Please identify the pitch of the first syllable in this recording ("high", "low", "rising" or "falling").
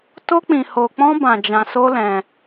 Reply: high